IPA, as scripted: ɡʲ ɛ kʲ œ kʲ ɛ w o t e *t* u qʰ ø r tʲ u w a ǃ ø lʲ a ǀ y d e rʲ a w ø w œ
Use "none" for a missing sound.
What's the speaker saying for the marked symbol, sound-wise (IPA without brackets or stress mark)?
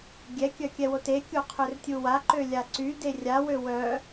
kʲ